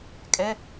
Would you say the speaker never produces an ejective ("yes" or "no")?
no